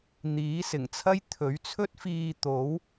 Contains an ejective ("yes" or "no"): no